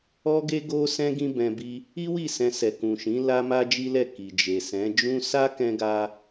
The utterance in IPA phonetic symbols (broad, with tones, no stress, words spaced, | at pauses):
ɔ˦ɡe˦ ɡo˦sɛ̃˦ ɡĩ˦bɛ̃˧bi˦ | i˦wi˦˨ sɛ̃˧sɛ˨kũ˨ʃĩ˨˦ la˦ma˦d͡ʒi˦lɛ˦˨ ki˨d͡ʒe˨sɛ̃˨˦ d͡ʒũ˦ sa˦kɛ̃˧ɡa˧